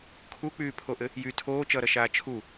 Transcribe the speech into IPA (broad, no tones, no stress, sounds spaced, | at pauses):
kʰ u k͡p yː pʰ o ʔ ɘ | j y tʰ oː t͡ʃ ʌː ɾ ʌ ʃ aː t͡ʃʰ u